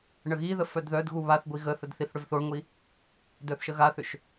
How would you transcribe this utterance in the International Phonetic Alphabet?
ɳ ə ɣ i ð ə f œ d ð œ d ɣ u β a θ ɡʷ i ɣ ə θ ə d θ i θ ɽ ʏ v θ o ɳ ŋʷ i | d œ θ ʃ ə ɣ a θ ʏ ʃ

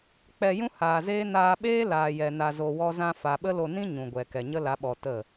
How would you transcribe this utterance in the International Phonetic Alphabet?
k͡p ɛ˧ j ũ˦ h aː˨ z eː˦ n aː˧ ɓ eː˦ l aː˨ j ɛ˨ n a˨ z o˨ w ɔ˧ z ã˧ f a˨ ɓ ə˦ l o˧ n ĩ˦ ɲ ũ˨ ɡʷ ɛ˨ k ɛ˨ ɲ ə˦ l a˨˦ ɓ ɔ˨ t ə˦˨

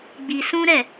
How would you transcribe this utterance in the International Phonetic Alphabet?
ɡ͡b i˧ s ũ˦ ɾ ɛ˦˨

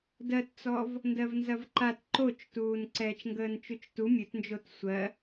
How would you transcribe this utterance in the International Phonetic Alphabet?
d ɜ t t͡s ɔ v | n d ɜ v n z ɐ v ǃ a t ǃ o t͡ʃ t uː n ǀ ɛː t͡ʃ ŋ ɡ əː n t͡ʃ u t͡ʃ t u mʲ ɵ t n d͡ʒ o t sʷ ɜ

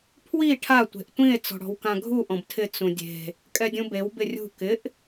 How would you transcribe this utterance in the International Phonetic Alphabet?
pʰ w i ʈʰ a tʷ e̤ ʔ tʷ ĩ e̯ t͡s ɔ̤ ɽ ɔ̤ w k ã ɡʱ u ʔ ɔ̃ b tʰ ɪ t͡s ũ dʲ e̤ | kʼ ɛ dʲ ũ b e w b ɪ rʲ ṳ k ɪ ʔ

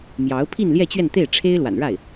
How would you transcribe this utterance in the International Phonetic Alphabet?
m j ɑ˧˥ ʊ̯ pʰ i˥˧ n l j ɛ˥˧ t͡ɕ ɥ ɛ˥˧ n t̪ e˥˩ ɪ̯ ʈ͡ʂʰ e˥ ɪ̯ l w a̰˨˩ n ɻ a˥˩ ɪ̯

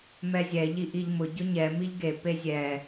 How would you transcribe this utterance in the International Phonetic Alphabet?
m ɛ zʲ ɛ ʎ i ʔ i ʎ m ʊ ɟ ʊ ɲ ɛ m i ʎ ɡ e p e zʲ ɛ

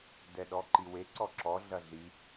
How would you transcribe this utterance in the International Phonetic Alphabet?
d ɛ ɗ ɔ ǃ i w e ǀ ɔ ǁ ɔ ɮ ɐ ɮ i

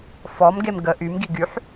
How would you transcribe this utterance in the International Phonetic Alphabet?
f ɔ m ɡ e m ɡ ə ʔ y m ɡ i ɡ y ħ

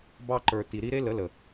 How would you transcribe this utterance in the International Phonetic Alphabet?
b ɑ˧ ǃ ə˞˨ t i˨ ɾ i˦ ɾ e˦ l ə˨˦ l ə˨

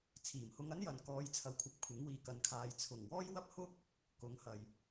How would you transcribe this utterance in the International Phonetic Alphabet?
t͡sʰ iː˨˩ m h ʊ˧ ŋ ɐ˥ n j ɐ˨ n k ɔː˨˧ j t͡sʰ ɐ˨ w kʷʰ ɐ˨ p̚ kʷʰ ɪ˨˥ ŋ w iː˨ k ɐ˨˧ n kʰ aː˨˧ j t͡sʰ ʊ˨˩ ŋ w ɔː˥ j w ɐ˥ p̚ h ʊ˥ k̚ | k ʊ˨˥ ŋ h ɐ˨ j

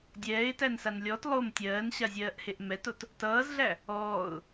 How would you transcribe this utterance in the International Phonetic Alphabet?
dʲ ɛː ɪ̯ t æ n s a n lʲ ɔ t lˠ o m tʲ ɜː n ɕ a zʲ ɜː ʔ h e ʔ m ɛ t o t | t ʌː z ɮ æ | ɔː ʊ̯

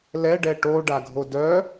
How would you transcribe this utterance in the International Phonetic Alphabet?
l ɛ ɖ ɛ ʈ o ɖ a ɡʱ o d œ

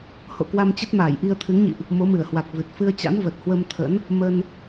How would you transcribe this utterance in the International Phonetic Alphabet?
h o̰˧˨ k w a˧ m t͡ɕ ə˦˥ t̚ m aː˧˩ j ʔ i˧ ə̯ t̪ʰ ɨ˨˦ ŋ ɲ ḭ˧˨ ʔ | m o˨˦ m ɨ˧˩ ə̯ h w a˨˩ k̚ v ɨ˨˩ t̚ f ɨ˧ ə̯ t͡ɕ a̰˧˥ n v ə˨˩ t̚ h w ə˧ m t̪ʰ ə̰˧˥ n | m ə˧ n

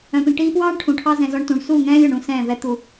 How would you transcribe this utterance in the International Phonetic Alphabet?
œ̃˨ p ĩ˨ ʈ iː˧ p w ɑː˦ ɳ ʈʰ ũ˨ ʈʰ ɑ˦ z ɛ̃˧ z ɔ˧ ɳ t ũ˨ ɳ s u˦˨ ŋ ɛ̃ː˦ lʲ ɵ˨ ɳ ũ˧ s ɛ̃ː˦˨ v ɛ˦ t̪ u˧

